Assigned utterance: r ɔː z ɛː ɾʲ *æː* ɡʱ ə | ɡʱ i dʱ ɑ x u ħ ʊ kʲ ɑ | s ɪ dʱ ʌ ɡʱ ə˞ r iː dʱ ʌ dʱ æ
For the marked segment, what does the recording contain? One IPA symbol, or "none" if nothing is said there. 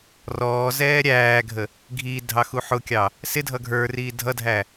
æː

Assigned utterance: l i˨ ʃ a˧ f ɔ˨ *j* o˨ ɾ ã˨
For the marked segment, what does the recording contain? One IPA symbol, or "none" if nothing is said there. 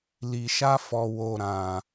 w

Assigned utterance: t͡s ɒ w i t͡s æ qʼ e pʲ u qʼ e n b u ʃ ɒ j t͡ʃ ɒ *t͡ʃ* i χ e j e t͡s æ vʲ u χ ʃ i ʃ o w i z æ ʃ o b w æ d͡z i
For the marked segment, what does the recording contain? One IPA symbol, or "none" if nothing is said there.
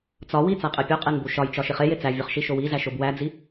ʃ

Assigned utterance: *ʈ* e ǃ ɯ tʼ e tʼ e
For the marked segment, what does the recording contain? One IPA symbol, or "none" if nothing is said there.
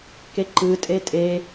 k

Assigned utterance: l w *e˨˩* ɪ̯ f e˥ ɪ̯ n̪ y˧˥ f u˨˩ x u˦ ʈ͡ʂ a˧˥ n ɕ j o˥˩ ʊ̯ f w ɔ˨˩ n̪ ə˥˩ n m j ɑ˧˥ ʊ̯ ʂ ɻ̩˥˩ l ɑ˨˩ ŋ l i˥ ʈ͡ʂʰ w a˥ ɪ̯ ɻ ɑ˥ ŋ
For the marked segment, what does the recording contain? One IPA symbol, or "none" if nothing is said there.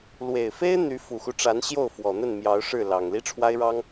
e˨˩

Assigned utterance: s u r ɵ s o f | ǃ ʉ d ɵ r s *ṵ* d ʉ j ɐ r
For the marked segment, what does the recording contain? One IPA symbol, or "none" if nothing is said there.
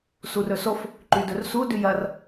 u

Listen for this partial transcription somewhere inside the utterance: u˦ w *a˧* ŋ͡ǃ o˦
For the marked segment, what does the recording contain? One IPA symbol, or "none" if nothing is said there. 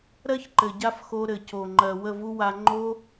a˧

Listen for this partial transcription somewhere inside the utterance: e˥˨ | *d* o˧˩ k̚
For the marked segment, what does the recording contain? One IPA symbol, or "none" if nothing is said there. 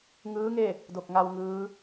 d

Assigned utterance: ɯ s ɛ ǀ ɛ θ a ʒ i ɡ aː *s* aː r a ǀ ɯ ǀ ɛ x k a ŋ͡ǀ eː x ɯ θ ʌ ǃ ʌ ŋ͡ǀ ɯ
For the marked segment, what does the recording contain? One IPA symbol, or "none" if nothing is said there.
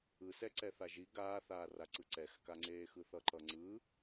θ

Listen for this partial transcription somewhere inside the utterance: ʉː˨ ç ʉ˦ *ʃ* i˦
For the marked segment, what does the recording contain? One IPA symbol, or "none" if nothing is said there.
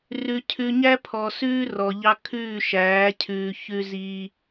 z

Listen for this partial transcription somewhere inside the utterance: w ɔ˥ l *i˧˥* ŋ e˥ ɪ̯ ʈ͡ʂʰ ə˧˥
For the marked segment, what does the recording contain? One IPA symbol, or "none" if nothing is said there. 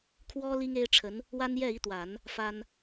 i˥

